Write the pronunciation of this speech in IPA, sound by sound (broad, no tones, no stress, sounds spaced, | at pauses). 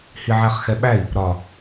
h i ʕ æ χ x ɛ ɓ æ i̯ | ɾ ɒ